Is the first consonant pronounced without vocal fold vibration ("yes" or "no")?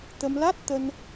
yes